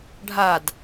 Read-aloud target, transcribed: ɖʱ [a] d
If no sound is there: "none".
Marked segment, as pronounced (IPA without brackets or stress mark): a